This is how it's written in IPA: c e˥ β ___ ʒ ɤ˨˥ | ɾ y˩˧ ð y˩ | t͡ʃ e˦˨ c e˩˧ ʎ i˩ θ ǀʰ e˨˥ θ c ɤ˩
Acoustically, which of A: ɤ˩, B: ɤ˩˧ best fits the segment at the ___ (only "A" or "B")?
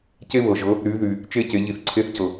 A